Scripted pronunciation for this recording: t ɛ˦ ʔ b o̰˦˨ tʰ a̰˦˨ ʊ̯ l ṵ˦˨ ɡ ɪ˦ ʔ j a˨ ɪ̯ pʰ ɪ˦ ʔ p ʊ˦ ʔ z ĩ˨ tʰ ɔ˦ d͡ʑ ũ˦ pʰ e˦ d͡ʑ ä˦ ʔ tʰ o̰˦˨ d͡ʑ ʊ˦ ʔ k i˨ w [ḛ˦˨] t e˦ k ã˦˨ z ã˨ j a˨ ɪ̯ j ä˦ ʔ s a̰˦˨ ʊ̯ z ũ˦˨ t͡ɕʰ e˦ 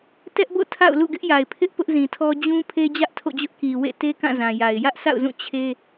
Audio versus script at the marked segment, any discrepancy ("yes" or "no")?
no